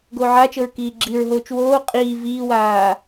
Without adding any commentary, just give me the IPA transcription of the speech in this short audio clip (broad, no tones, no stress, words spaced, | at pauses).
ɡoːʕat͡ʃɤɹ kiːɡ͡ǁiɹɦoːt͡ʃ woː qʼiː viːwaː